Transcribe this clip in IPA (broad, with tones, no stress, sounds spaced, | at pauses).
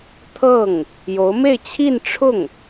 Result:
t̪ʰ ɤ˥˩ ŋ | j o˧˥ ʊ̯ m e˥˧ ɪ̯ t͡ɕʰ i˥˧ n ʈ͡ʂʰ ʊ˥˩ ŋ